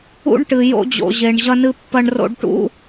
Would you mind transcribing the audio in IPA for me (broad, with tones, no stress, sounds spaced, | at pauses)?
ṵ˥ ɳ ʈ ɨ˧ j o̰˥ d͡ʑ o̰˧ ʑ e˧ ɳ ʑ ɐ˥ n ɨ˥ pː ɐ˥ ɳ r o̰˥ ɖ ʈ ṵ˥